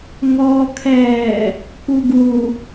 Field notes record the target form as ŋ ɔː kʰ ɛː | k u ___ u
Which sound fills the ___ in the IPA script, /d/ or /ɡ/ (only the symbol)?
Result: ɡ